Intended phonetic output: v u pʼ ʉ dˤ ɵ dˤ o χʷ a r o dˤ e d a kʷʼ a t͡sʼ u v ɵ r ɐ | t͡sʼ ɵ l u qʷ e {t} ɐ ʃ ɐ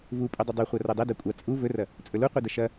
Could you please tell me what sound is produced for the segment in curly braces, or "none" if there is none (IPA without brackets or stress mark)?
d